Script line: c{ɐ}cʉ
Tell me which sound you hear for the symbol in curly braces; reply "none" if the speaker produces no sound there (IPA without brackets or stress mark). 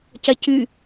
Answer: ɐ